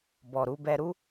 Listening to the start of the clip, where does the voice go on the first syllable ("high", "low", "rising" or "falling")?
low